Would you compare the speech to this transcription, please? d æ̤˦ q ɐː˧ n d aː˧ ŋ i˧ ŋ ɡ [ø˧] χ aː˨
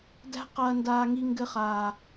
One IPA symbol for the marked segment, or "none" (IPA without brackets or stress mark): ɘ˧